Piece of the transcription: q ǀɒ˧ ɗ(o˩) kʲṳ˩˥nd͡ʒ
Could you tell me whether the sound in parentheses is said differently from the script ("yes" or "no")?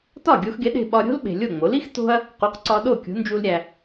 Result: yes